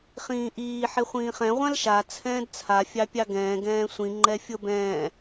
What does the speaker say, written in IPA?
χ ĩː ʔ iː ħ e χʷ ĩː χ ɛ̃ ʁʷ ã l ʃ a t͡sʰ ɛ̃ː d t͡sʰ a fʲ ɑ pʲ ɑ ɡ ɛ̃ː ɡ ɛ̃ː sʷ ĩ ŋ͡ǃ ɛ fʲ ɤ b ɛ̃ː

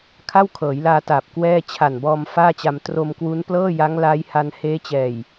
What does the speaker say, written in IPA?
kʰ a˥˩ w kʰ ɤː˩˦ j l aː˧ t aː˨˩ p̚ k w ɛː˥˩ t͡ɕʰ a˨˩ n b ɔː˧ m f aː˥˩ t͡ɕ a˧ m t r o˧ m k w u˦˥ n p l ɤː˥˩ j a˦˥ ŋ l aː˦˥ j h a˧ n h eː˦˥ t͡ɕ ɛː˨˩ j

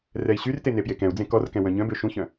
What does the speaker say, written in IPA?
r ɛ i̯ ɕ y r t e n e p j e k ɛ̃ u̯ d͡z ẽ k ɔ r k ɛ̃ w œ̃ ɲ œ̃ b ø ʃ ũ ç œ̃

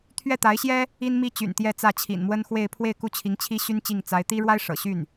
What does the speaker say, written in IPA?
t̪ʰ ɥ ɛ˥˩ t̪ a˧˥ ɪ̯ ɕ j ɛ˥ | i˥ n m i˥ t͡ɕ y̰˨˩ n t̪ j ɛ˥˧ t͡s ä˥˩ t͡ɕʰ ḭ˨˩ n m w ə˥ n x w e˥˧ ɪ̯ pʰ w e˥˧ ɪ̯ k u˥˩ t͡ɕʰ i˧˥ ŋ t͡ɕʰ i˥ ɕ y˥ n t͡ɕ i˥˩ ŋ t͡s a˧˥ ɪ̯ t̪ i˥ ɻ w a˥ ɪ̯ ʂ ɤ̰˨˩ ɕ y˥˩ n

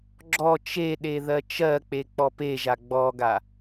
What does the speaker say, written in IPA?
ɡ͡ǁ ɔ t͡ʃ e ɗ e ð ɜ t͡ʃ ɜ k͡p e k͡p ɔ p e ʒ a ɡ͡b ɔ ɡ a

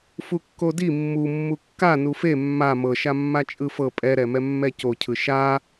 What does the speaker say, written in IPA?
f u kː o d i mː u mː u kː a n u f e mː a m ɤ ʃ a mː a t͡ʃʼ ɯ f ɤ pʼ ɛ ɾ ɛ m ɛ mː ɛ c o cʰ ɯ ʃ a

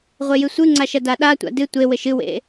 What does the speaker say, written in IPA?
ʁʷ e j ɨ sʷ ɨ ŋ͡ǀ a ʃ ɐ d a ɗ a tʷ a̰ d ɨ tʷ e w ɘ ʃ ɨ w ḛ

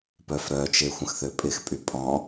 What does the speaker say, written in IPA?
p œ f ɾ œ t͡ʃ e xʷ ə̃ x θ ø pʼ ɪ x pʼ y pʼ ɔ̃

